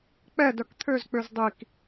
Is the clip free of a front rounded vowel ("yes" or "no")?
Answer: no